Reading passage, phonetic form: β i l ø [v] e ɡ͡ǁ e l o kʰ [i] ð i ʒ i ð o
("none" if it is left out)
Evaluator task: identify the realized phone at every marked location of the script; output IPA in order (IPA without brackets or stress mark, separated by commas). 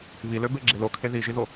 b, e